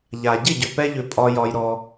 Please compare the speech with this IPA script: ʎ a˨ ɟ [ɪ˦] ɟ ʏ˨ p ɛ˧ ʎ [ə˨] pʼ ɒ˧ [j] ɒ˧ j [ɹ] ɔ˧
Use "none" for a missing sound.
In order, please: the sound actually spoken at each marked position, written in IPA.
ɪ˦˨, ʏ˨, j, ɾ

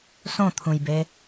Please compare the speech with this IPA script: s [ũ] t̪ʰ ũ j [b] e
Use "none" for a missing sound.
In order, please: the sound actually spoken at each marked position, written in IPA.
õ, b

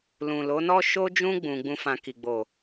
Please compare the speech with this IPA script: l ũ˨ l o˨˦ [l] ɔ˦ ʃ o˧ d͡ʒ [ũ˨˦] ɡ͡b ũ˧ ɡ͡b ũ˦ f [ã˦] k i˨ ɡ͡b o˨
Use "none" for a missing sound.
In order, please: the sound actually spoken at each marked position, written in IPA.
n, ũ˧, ã˧

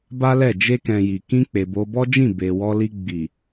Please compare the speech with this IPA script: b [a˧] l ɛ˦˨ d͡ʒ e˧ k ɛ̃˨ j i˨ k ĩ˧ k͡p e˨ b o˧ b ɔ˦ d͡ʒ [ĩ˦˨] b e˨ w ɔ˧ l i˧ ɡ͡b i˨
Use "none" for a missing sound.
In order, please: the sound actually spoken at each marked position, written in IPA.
a˦, ĩ˦˨

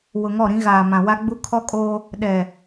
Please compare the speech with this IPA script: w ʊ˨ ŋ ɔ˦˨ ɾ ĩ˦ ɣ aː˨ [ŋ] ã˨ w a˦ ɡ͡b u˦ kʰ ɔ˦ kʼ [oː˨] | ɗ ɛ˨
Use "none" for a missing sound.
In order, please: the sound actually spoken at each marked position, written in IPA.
m, oː˦

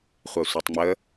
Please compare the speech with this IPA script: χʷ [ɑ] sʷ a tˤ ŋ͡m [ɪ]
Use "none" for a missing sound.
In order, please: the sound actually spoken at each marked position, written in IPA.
a, ə

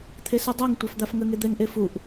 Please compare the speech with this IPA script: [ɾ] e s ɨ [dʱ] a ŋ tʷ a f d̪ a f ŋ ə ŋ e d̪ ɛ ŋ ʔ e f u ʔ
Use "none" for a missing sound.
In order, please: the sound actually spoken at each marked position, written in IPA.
t̪ʰ, dˤ

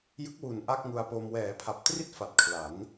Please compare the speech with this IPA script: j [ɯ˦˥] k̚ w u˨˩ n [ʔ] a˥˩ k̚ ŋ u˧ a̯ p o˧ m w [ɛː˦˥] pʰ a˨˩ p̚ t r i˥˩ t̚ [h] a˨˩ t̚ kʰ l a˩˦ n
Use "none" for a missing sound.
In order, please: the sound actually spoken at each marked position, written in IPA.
ɯ˦˥, ʔ, ɛː˩˦, f

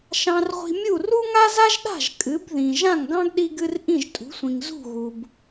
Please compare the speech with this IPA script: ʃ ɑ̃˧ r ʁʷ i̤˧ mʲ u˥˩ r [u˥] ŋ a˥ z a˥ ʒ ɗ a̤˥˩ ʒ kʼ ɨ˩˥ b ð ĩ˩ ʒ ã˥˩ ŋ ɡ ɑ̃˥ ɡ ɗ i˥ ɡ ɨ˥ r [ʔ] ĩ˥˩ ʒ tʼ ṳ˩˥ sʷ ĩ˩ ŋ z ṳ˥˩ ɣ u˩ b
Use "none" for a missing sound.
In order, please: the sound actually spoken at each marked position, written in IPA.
u˥, ʔ

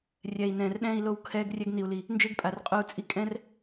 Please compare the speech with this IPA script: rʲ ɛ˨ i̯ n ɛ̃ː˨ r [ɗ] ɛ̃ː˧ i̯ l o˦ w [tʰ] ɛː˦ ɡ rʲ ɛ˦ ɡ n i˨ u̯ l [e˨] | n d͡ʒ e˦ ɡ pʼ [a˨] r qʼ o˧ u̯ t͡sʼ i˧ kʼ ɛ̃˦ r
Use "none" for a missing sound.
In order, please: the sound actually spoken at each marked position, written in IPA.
ɗ, kʰ, i˨, a˨

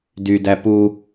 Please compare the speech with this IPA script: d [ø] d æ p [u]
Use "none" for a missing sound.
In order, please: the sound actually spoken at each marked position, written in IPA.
y, u

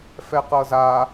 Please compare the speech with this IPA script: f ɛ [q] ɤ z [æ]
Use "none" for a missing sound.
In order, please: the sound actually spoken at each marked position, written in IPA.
q, a

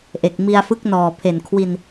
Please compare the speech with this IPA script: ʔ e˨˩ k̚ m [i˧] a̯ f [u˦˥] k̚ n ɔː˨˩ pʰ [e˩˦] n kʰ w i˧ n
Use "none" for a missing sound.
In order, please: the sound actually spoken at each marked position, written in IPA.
i˧, ɯ˦˥, e˨˩

